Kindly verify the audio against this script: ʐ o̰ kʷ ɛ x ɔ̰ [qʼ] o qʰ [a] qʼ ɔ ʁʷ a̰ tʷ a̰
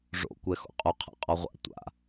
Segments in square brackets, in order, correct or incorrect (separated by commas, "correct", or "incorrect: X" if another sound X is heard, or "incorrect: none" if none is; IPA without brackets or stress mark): correct, incorrect: a̰